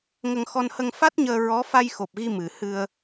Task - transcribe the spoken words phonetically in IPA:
ŋ ə˧ ŋ x ɔ˧ n h ə˧ ŋ f a˦˥ t̚ ɲ əː˧ ɹ ɔ˧˥ f a˧ j x o˨˩ p̚ ɣ i˧ m ɨ˨˩ h ɨ˧ ə̯

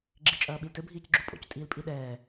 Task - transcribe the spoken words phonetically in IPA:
ɡ͡ǁ i t͡ʃʼ ɐː ɓ i l t ɘ bʱ iː c ɡ͡ǁ u pʼ o̰ c tʼ iː l pʼ i ɗ ɛː

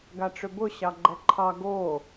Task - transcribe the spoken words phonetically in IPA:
ɡ a ʈ͡ʂ ʏ b ʊ ɕ ɑ ɡ͡ǃ ɛ ǃʰ ɑ ɡ o

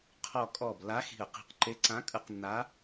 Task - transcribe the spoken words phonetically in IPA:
qʰ ɔ˧˩ kʼ ɔ˧˩ b l a˧˥ x i̤˧˩ ə̯ q i̤˧˩ q ǃ e˧˥ ǀ ã˧˥ kʼ ɯ˧˥ q nː a˧˥

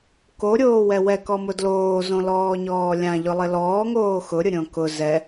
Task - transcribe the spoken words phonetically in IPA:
k o ɾʲ oː w ɛ w ɛ k ɔ m ʊ d l oː z õ l ɔː ɲ ɔː lʲ ã ʎ ʊ lˠ ɪ l ɔː ŋ oː x ʊ ɾʲ ʊ ɾʲ õ k ʊ z ɛ

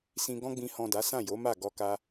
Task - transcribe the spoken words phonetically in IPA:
s ĩ˧ ɡ ɔ̃˧ ɡ͡b ĩ˨ h ɔ̃˨ d a˨˦ s ã˦˨ j o˨˦ m a˦˨ ɡ ɔ˧ k a˧

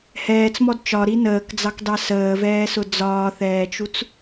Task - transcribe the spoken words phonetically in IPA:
h ɛː t͡s m ɔ d t͡ʃ ɒ ɾ i n əː k d͡z ɑ k d ɑ s əː v ɛː s ʊ d͡z ɒː θ ɛː t͡ʃ u t͡s

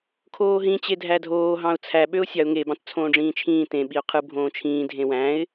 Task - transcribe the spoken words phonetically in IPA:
kʰ oː ɦ ĩ t͡ɕ e dʱ æ dʱ oː ɦ ɑ̃ ʊ̯ t͡sʰ æ ɓ ø ʊ̯ sʲ ɑ ʊ̯ ŋ e b ɑ̃ t t͡sʰ õː ɖ͡ʐ ĩː t͡ʃʰ ĩː t ẽ ɓ i ʊ̯ qʰ ɯ bʱ õː t͡ʃʰ ĩː dʱ ẽ w æ̃ ɪ̯

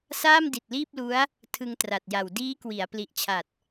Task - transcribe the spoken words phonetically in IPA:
s aː˥˩ m d i˨˩ t̚ l iː˥˩ p̚ l u˦˥ a̯ | tʰ ɯ˧ ŋ t r a˨˩ t̚ j a˨˩ w d iː˦˥ k w i˩˦ a̯ p l i˨˩ ʔ t͡ɕʰ a˨˩ t̚

